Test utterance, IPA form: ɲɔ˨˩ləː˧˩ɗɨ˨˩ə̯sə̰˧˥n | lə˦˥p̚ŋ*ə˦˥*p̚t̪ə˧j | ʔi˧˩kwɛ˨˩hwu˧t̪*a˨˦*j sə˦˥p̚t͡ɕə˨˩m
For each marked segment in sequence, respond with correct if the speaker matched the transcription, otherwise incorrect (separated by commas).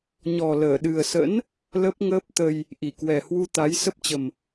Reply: incorrect, correct